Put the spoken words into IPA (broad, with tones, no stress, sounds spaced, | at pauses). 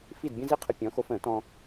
f i˥˨ d bʲ ə̃˥ z i˥ qʰ ə˧ pʲ ɔ̃˨˥ x o˧ f ə̃ː˨˩˦ t ɔ̃˧